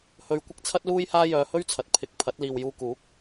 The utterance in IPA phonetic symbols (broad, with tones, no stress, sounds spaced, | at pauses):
h ɵ˧ ɥ kʷ ɪ˥ k̚ t͡sʰ ɐ˥ t̚ l uː˥ j h aː˥ j œː˧ h ɵ˥ ɥ t͡sʰ ɐ˨ t̚ pʰ ɪ˧ k̚ pʰ ɐ˨˥ t̚ l iː˨ w j uː˧ k uː˨˥ k̚